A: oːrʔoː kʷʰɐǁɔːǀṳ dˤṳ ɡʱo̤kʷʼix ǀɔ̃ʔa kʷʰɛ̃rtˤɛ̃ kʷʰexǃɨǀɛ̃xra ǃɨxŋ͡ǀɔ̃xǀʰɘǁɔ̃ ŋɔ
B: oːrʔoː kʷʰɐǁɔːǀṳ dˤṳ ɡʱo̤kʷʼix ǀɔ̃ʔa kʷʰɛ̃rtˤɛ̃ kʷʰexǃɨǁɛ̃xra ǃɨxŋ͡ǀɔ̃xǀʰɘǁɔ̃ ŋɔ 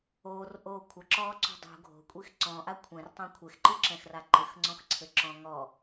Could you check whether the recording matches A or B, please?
B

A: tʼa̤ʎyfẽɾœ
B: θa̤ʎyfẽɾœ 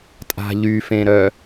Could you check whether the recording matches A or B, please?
A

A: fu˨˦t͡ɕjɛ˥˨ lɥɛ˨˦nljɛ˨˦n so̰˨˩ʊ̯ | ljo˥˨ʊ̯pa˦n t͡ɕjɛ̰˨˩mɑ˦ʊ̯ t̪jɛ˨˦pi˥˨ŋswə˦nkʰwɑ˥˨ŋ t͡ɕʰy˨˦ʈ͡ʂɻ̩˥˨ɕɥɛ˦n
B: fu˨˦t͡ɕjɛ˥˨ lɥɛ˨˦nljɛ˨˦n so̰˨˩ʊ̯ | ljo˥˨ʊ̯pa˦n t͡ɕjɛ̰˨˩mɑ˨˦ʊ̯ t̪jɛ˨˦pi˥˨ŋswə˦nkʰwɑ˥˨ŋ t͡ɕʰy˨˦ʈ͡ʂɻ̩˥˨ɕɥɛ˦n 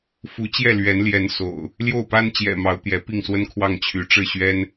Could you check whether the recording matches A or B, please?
B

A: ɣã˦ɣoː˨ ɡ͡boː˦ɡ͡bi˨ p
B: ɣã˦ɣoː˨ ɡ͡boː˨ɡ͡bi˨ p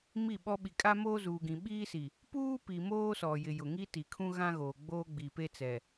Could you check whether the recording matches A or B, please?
A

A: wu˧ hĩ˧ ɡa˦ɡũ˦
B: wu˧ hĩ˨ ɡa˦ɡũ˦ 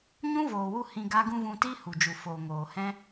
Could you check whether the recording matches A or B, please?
A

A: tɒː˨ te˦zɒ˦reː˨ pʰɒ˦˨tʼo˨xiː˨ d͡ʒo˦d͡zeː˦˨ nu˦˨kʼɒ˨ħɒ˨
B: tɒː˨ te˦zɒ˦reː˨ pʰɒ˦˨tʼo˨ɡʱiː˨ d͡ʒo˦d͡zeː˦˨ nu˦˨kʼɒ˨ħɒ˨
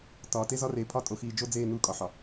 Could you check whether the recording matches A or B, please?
A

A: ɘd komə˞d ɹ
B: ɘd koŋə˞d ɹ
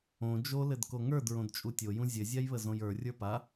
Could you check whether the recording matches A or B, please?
B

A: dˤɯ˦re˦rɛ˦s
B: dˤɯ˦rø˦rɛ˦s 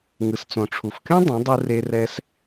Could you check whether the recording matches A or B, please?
A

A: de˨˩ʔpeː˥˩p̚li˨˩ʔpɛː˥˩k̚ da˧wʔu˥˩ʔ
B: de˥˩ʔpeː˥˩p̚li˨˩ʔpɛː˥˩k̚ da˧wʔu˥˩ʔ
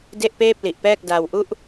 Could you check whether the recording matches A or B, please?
B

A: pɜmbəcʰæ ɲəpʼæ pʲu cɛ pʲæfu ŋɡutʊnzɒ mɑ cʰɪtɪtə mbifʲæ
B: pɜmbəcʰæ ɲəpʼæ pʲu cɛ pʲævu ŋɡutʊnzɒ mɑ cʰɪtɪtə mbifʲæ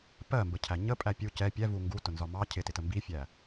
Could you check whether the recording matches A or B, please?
B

